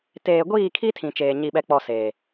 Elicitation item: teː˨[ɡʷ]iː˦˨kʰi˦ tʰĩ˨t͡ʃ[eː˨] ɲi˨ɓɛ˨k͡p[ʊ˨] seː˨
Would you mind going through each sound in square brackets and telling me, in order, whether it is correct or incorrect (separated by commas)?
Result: correct, correct, incorrect